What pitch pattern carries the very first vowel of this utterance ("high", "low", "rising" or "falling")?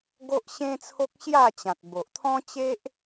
high